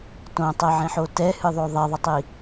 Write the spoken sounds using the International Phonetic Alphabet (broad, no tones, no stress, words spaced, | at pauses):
tõtˤɛʕẽħo tɛhɨðˤo ðˤeðˤətˤi